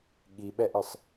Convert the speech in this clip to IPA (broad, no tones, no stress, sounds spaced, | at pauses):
ɠ i ɓ ɛ ʔ ɨ sˤ